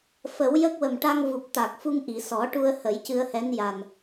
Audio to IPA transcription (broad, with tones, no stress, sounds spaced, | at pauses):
f ə˨˩˦ w j ə˦˥ k̚ w ə˨˩ m ʈ a˧ ŋ v u˨˩ p̚ t̪ a˨˩ k̚ f u˧ ŋ ʔ i˨˩˨ s ɔ˨˩˦ ʈ u˧ ə̯ h ə˨˩˦ j c ɨ˧ ə̯ h ɛ˧˥ n j a˨˩ n